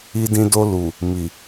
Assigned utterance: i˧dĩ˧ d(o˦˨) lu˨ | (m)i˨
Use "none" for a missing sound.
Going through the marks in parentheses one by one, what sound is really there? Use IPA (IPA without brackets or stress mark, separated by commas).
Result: o˧, m